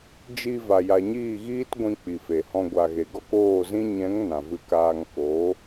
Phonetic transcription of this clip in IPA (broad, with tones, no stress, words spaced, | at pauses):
d͡ʒi˧ va˨ja˨ɲiː˦˨ɣiː˦t ɡʷĩ˧ k͡pi˨fe˨hɔ̃˧ ɡʷa˨ɣe˨ ɡɔ˦koː˦˨zĩ˦ ɲɛ̃˨˦ŋ nã˨vɨ˧kaː˧ŋ ko˨˦